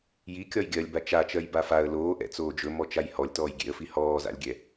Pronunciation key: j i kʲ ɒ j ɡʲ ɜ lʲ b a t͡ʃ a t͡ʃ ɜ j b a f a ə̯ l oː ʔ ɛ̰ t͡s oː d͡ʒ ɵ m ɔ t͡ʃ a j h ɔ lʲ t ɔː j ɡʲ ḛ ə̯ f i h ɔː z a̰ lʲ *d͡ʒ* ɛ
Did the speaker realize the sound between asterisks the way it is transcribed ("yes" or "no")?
no